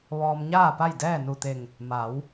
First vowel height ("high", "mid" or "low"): mid